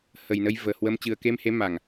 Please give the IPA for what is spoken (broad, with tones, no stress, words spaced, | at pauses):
hə˨˩jnə˧j vəː˨˩hwə˧m t͡ɕɨ˨˩ə̯ke˧mhe˨˦ ma˨˩ŋ